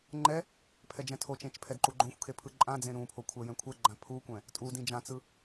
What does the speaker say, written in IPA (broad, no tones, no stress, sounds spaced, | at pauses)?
ŋ͡ǃ ɛ | pʰ ɛ d͡ʒ ɛ̃ tʰ o t͡ʃ ẽ t͡ʃ pʰ ɛ d ǃ u ɡ͡ǃ õ xʷ kʰ e pʰ ɯ ǃʼ ã d͡z ẽ ɾ ũ pʰ o kʷʰ ɛ j ɛ̃ kʷʰ ɛ ɡ͡ǃ ã pʰ u kʷ ɛ̃ | tʼ u d ĩ d͡ʒ ã t͡s ɯ